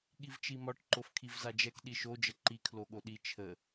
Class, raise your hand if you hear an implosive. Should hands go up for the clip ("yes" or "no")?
yes